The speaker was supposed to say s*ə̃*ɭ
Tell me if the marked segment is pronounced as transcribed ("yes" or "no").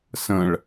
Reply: yes